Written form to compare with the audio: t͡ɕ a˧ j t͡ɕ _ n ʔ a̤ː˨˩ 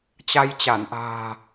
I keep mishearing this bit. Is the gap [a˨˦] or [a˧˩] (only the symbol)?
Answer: a˧˩